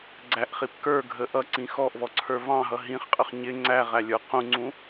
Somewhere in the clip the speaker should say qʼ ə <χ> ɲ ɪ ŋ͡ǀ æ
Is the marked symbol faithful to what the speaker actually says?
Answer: yes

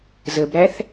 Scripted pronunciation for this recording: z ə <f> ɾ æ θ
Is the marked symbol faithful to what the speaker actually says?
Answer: no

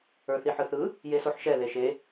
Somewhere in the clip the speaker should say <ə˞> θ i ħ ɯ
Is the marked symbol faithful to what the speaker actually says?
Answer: yes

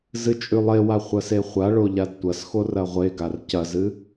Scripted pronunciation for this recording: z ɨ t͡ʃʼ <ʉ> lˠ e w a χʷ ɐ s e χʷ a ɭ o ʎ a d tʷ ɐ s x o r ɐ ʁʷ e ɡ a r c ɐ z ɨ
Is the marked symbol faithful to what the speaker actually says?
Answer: yes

